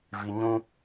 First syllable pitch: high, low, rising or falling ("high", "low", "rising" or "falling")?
high